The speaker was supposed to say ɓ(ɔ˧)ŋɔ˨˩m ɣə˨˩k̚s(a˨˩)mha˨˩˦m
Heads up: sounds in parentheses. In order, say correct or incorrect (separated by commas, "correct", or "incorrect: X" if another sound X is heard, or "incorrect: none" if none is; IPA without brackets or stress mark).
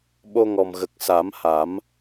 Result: incorrect: o˧, incorrect: a˨˩˦